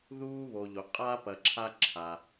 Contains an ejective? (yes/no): yes